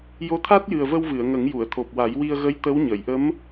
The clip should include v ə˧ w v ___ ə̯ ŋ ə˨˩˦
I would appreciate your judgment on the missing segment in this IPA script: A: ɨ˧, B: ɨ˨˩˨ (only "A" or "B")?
B